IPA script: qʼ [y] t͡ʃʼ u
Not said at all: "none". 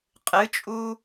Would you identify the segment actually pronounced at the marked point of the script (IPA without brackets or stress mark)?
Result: ɨ